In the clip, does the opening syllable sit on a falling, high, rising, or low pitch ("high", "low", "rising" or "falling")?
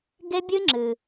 high